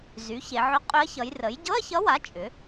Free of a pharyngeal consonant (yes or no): no